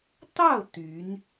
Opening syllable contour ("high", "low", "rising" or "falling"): falling